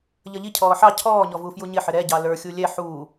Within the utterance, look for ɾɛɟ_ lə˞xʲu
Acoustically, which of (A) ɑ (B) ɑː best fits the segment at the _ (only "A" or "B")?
A